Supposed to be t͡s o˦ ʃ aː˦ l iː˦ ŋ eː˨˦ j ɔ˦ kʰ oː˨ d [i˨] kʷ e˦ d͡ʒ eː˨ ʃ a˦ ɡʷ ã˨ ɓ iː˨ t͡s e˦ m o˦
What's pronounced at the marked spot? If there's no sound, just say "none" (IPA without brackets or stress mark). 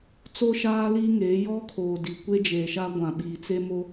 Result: i˨